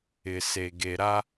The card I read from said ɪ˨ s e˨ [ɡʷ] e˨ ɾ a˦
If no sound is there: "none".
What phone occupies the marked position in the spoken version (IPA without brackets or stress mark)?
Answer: ɡ